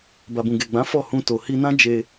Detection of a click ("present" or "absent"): absent